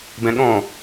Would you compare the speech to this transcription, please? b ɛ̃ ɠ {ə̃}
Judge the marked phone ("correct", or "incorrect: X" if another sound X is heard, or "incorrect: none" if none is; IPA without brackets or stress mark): incorrect: ɔ̃